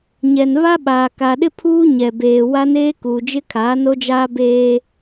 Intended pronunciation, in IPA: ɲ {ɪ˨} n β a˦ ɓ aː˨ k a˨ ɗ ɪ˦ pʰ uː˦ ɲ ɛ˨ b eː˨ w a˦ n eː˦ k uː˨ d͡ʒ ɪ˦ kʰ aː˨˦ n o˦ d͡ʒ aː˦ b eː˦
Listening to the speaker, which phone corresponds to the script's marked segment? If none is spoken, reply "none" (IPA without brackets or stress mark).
ɛ˨